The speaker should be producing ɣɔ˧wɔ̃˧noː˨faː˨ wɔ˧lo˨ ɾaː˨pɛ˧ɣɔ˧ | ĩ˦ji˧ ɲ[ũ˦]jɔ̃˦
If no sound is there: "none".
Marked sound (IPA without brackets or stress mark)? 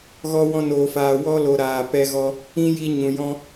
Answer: ũ˨